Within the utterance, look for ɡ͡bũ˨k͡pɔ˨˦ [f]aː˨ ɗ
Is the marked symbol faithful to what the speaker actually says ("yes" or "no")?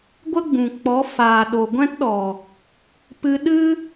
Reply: yes